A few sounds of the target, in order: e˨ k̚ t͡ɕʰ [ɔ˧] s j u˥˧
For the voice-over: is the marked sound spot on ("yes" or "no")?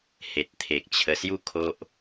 no